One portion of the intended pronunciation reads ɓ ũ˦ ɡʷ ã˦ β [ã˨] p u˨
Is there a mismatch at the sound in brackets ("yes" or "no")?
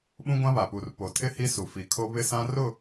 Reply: yes